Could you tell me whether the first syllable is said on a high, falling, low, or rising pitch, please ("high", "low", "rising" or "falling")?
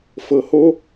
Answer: low